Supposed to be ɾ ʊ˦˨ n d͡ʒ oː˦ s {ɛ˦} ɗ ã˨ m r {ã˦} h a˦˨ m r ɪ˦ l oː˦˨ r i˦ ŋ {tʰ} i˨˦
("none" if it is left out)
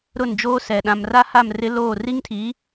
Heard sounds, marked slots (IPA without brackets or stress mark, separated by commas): ɛ˨, a˦, tʰ